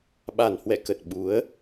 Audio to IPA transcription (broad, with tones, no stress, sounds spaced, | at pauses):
ɓ a˨˩ n h w ɛ̰˧˨ k ə˨˩ t̚ ɓ u˨˦ ə̯